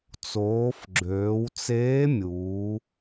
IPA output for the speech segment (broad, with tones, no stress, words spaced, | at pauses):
t͡soː˩˧fɡ͡ǁøː˩˧wt͡seː˧˥mʲuː˩˧